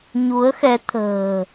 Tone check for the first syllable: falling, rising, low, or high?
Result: rising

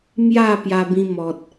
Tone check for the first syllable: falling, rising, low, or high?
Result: falling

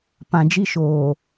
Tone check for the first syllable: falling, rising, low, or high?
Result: low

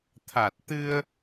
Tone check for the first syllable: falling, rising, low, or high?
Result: low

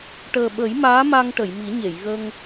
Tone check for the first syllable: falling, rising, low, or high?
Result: low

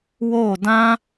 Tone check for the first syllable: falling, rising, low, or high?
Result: falling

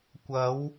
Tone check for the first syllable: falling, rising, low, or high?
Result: rising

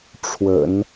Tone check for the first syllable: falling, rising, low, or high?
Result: low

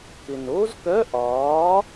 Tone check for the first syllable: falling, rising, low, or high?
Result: low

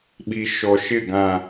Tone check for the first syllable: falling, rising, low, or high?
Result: low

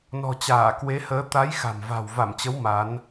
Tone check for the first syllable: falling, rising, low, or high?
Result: low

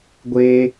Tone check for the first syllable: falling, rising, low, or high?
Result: high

